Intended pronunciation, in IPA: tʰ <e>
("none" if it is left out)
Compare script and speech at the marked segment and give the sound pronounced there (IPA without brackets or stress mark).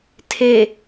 e